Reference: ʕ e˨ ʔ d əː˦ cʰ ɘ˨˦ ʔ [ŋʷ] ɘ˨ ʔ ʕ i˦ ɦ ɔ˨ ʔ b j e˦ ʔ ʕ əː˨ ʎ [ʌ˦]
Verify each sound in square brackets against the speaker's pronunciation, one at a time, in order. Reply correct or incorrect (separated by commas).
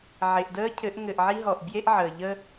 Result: incorrect, incorrect